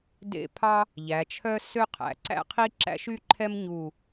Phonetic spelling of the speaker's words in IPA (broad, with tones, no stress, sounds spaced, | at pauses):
d ḛ˥˧ pʰ ɑ˥ | ʎ æ˩˧ t͡ʃʰ œ˥ s ø˥˧ qʰ æ̰˩˧ ǀ æ̰˥ qʰ i˥ ǁ æ̰˥ ʃ y˥ ǃʰ ɛ˥ m ɲ u˧˩